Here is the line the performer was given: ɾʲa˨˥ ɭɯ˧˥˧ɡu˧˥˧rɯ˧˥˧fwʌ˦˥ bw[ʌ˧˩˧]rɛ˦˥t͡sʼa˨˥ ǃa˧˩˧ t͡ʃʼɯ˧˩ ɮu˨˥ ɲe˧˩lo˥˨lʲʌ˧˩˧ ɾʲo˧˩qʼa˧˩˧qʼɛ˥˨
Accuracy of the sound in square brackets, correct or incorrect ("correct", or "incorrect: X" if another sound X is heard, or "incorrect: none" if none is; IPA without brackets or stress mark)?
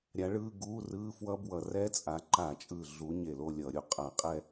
correct